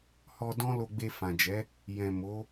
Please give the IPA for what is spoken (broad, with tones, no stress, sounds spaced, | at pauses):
h ɔ˧ d ɔ̃˦ l o˧ ɡ͡b e˧ f ã˨ d͡ʒ ɛ˨˦ | j ɛ̃˨ m o˨˦